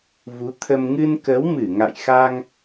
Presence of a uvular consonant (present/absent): absent